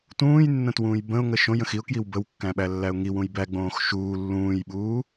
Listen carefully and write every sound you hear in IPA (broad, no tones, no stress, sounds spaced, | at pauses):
t ũː j nː ə̃ t w ũː j b ə̃ ʊ̯ ŋ ə ʃ õ j ə̃ x i ʊ̯ k j i w b ə w kː æ̃ ɓ æ lː æ ʊ̯ ŋ i w ũ j b æ ɡ͡b õː x ʃ uː lː ũː j ɓ uː